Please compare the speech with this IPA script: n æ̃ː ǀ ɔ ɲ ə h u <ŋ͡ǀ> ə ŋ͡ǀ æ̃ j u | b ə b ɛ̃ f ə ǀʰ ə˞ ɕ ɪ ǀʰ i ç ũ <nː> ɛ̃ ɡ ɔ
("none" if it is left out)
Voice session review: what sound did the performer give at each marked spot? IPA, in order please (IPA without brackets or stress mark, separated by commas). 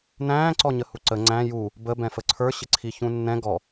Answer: ǀ, nː